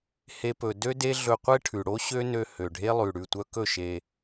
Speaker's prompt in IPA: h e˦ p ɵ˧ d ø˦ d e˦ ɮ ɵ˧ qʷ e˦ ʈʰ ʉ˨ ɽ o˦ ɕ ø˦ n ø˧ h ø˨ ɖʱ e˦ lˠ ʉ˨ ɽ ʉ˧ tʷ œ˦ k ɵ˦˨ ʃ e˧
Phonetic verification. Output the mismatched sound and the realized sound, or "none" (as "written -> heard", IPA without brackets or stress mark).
none